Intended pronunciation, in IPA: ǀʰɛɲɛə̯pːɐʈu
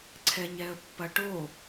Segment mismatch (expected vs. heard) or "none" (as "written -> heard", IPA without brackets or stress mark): u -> o